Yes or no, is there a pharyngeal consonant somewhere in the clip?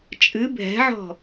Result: yes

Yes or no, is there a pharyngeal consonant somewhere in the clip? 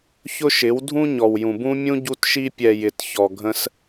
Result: no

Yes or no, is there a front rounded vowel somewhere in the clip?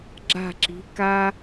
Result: no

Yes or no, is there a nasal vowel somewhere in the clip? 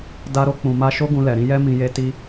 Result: yes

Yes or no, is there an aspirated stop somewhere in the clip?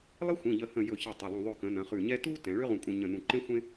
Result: no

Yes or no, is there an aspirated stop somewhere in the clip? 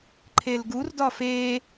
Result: yes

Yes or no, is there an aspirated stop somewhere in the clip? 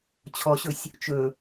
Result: yes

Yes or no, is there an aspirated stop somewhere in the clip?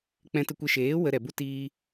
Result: no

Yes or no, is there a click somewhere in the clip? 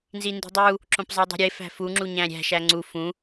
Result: yes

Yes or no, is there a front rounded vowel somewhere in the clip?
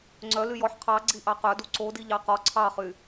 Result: yes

